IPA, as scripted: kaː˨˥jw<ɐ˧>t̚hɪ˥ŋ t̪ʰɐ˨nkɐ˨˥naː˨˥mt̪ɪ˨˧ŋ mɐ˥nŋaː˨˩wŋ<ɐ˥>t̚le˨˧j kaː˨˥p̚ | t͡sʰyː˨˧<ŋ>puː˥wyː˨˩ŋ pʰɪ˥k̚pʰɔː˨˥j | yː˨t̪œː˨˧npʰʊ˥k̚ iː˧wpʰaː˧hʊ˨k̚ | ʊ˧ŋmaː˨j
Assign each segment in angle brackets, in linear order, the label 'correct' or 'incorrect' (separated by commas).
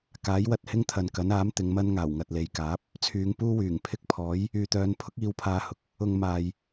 correct, incorrect, correct